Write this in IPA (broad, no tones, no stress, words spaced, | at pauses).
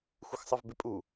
xʷɯxsˤɯvbɪpʼu